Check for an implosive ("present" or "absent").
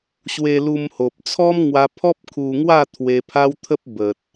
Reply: absent